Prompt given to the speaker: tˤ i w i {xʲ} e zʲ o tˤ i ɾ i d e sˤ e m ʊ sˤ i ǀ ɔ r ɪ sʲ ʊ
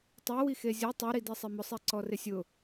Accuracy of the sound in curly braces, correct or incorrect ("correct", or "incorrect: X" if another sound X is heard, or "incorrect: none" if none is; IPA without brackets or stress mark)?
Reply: incorrect: x